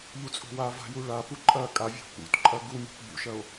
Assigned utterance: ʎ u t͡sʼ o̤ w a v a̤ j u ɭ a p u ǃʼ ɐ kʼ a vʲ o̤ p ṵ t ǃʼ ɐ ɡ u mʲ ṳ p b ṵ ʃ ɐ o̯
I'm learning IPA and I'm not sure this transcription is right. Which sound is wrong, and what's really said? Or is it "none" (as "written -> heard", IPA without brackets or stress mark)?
none